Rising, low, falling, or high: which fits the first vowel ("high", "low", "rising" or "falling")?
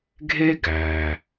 high